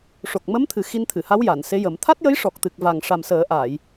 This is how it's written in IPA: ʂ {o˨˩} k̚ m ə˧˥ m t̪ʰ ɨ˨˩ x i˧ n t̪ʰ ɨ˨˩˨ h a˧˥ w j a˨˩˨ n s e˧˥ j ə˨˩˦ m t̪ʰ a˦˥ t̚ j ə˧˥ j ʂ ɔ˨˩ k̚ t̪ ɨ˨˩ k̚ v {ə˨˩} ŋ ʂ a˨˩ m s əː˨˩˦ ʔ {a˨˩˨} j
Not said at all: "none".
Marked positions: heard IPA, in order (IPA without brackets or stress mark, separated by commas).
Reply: o˨˩, a˨˩, aː˨˩˨